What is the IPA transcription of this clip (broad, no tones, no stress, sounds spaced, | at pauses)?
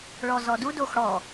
ɭ ɔ z ɔ d u d o x ɽ ɔ